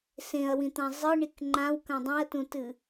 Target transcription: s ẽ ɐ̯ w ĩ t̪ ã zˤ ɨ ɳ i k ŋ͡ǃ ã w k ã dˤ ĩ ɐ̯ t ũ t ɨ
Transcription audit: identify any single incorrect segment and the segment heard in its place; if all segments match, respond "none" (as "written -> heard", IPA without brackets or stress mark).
none